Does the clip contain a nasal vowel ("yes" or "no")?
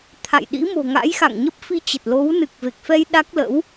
no